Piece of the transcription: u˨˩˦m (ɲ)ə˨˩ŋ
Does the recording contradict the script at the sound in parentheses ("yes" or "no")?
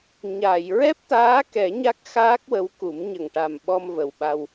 no